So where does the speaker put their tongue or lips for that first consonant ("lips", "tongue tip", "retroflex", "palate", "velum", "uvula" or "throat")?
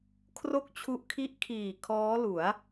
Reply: velum